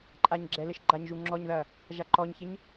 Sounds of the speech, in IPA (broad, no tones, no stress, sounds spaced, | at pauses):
ǃʼ a ɲ ɡ͡ǁ ɛ l ɘ ʃ ɡ͡ǃ a ɲ ʒ u ŋ͡ǁ ɔ ɲ ð ɐː | ʒ a ǃ ɔ ɲ ç e ɲ